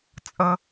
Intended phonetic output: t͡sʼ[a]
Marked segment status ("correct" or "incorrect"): incorrect